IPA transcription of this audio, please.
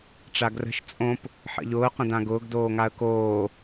ʈ͡ʂ a ɡ r ə̤ ʃ t͡sʼ õ p | ħ ə̰ ʎ ʊː q ə̃ d ã ɡ ʊː ɡ d oː ŋ a ə̯ k oː

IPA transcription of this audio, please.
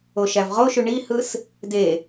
o ʃ æ v ʁ o ʃ y ɳ i h ɯ s | d e

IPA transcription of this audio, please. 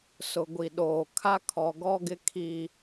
s ʊ˨ ɡʷ i˨ ɗ oː˨ kʰ a˦ kʰ ɔ˨ ɡ ɔ˦ ɡ ɪ˦ kʰ i˦

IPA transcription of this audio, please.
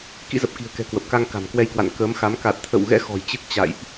k ḭ˧˥ z ə˨˩ p̚ k i̤˨˩ ə̯ k ɛ̤˨˩ k w ə˨˩ p̚ k a˧ ŋ k a̤˨˩ m k w ɛ˧ j k w a̰˧˨ n k əː˨˦ m x a˨˦ m k a˨˩ t̚ t̪ʰ ə̰˧˨ w ɣ ɛ̰˧˥ x ɔ̤˨˩ j t͡ɕ ɨ˦˥ k̚ t͡ɕ a̰˧˨ j ʔ

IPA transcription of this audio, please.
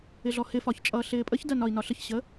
ɪ ɮ ɔ h ɪ f ɒ ç t͡ʃʼ ʌː ɬ ɪː pʼ ə ç d ɜ n ɒ i̯ n ɒ ɬ ə ç ɕ ə

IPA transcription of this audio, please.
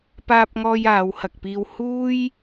p aː˧ p̚ ŋ ɔː˧ j aː˨˧ w h ɐ˨ k̚ p iː˧ w h uː˥ j

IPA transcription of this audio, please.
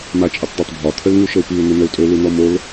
m a t͡ʃʼ ə tˤ d a tˤ bʱ ɒ t̪ʰ ə l ŋ u ʃ ə u̯ p i u̯ n̪ ɪ n ə u̯ tʼ ɵ l u n̪ ɔ m o l

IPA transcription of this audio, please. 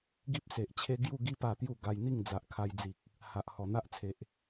ɡ i˦ p̚ s e˨ ʔ t͡ɕʰ e˦ ɡ j u˥˧ ɡ i˦ p a˧ t̪ j u˥˧ ɡ a˧ j n̪ i˥˧ ŋ d͡z a˨ ʔ kʰ a˧ j d͡z i˨ k̚ | h a˨ ʔ h ɔ˨˩ n̪ a˦ ʔ t͡sʰ e˨ ʔ

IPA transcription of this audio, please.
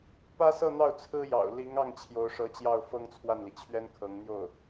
p ä˥ s ɤ˥˧ n̪ ɑ˥˩ ʊ̯ t͡sʰ ɹ̩˥ j ɑ̰˨˩ ʊ̯ l i˧˥ ŋ ɑ˥˩ ŋ t͡ɕʰ j o˧˥ ʊ̯ ʂ ɤ˧˥ t͡ɕ j ɑ˥˩ ʊ̯ f ɤ˥ ŋ t͡sʰ w a˥˩ n l i˩ t͡ɕʰ ɥ ɛ˥ n kʰ ɤ˧˥ ŋ n̪ j o˥˩ ʊ̯

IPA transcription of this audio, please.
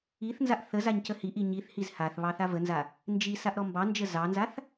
i θ n z a ʔ θ ə z a ɲ c ə h i ʔ i ɲ i θ h i z h a θ β ɑ θ a v ə n z a | n d͡ʒ i s a ʔ ɾ ɔ m b ɑ n d͡ʒ ə z ɑ n z a θ

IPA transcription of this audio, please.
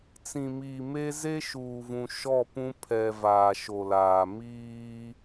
t͡s ĩ˨ m iː˨ m e˦ z e˦ ʃ uː˨ v ũ˨ ʃ ɔ˦˨ p ũ˦ pʰ ɛ˨ v aː˨ ʃ o˨ l aː˨ m iː˦

